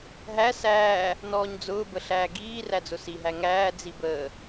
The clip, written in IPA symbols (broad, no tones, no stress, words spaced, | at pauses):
ɦæ sæː | nɔːɲd͡zʊː bəɬæːɡiː ræd͡zʊsi ɦæŋæː d͡zibəː